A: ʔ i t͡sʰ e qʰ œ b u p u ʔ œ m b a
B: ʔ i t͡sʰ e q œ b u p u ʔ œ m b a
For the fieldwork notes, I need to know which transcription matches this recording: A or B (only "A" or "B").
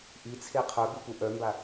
A